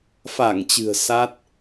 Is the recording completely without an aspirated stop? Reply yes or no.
yes